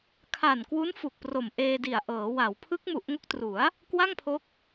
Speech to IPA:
kʰa˨˩nkwu˦˥n fu˨˩k̚pro˨˩mʔeː˧di˨˩a̯ ʔɤː˩˦wa˩˦w pʰɯ˦˥k̚mu˨˩ʔŋo˦˥k̚tru˩˦a̯ | kwa˥˩ŋpʰo˦˥k̚

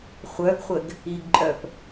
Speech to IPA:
χʷœɡχʷəɡ | iɡǃʼœp

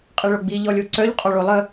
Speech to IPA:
qʼiɭoɡ͡bi ʎɔlʲoǀœʎ qʼɔɭolˠə

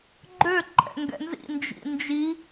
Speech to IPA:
ɡ͡ǃø ǃʼɛ̰ŋɡɛ̰nzḭ nd͡ʒḭnd͡ʒi

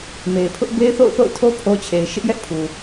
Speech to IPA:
me˨ɪ̯pʰʊ˦ʔ be˦ɪ̯θo̰˦˨ʊ̯θo̰˦˨ʊ̯tʰo˦ pʰo˦ t͡ɕʰe˨ɪ̯ʃɪ˦ʔjɛ˦ʔpʰu˨

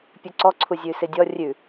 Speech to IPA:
pʲʉǀɔǀʰuzʲʉ sɪdʲɔ rʲʉ

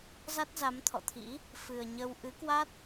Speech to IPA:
za˦˥t̚za˨˦mt̪ʰɔ̰˧˨t̪ʰḭ˧˥ | fɨ˨˩ə̯ɲə˧w ʔɨ˨˦kwa˦˥t̚

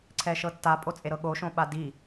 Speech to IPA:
ǀʰɛʃɤtːa pʼot͡sʼeɾɤɠo ʃõɓadi

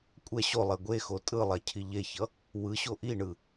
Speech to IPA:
kʷʼɛ ɕolˠe ɡʷexo tʼɯlˠacʰi ʎeçʌ | wɯɕo ʔiɳɯ

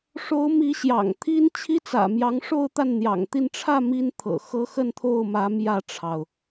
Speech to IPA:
ʂo˧˥ʊ̯ mi˧˥ɕjɑ̰˨˩ŋt̪ʰi˥n t͡ɕʰi˥t͡sä̰˨˩ mjɑ˧˥ŋʂo˥˧ʊ̯t̪a˥˩n n̪jɑ̰˨˩ŋt̪i˥˧n ʈ͡ʂʰä˥˩ mi˥nt̪ʰɤ̰˨˩xɤ˥ xə˥˧nt̪ʰo˥˩ʊ̯mä˧˥ mjä˥˩ʈ͡ʂʰɑ˩ʊ̯

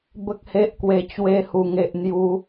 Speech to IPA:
bə˦k̚he˦ʔkwe˧ t͡ɕwe˧hu˨˩ŋe˨ʔ n̪ju˧

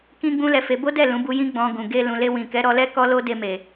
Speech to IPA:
kĩ˦ɡ͡bũ˦lɛ˧fe˧ bo˦dɛ˦˨ lũ˨˦bu˧jĩ˦ ɡ͡bɔ̃˧ɡũ˨ ɡe˧ lũ˨le˧wĩ˨ kɛ˨˦ɾɔ˧lɛ˦ kɔ˦lo˦de˧ me˨

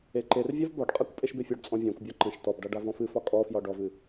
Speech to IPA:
eǃervʲav bɒɖqʼakʷ pʼeʃbefʲɒɖt͡sʼɔ̃ vʲãkʷbʲɒ ǃə̃ʃ tɔbɖa ɖavɔ̃fɨfɒ kʼɔfjɒɖ ɔvɨ

